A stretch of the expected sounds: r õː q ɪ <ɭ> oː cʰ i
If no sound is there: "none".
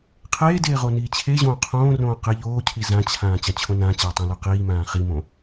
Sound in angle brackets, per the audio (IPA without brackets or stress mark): ʎ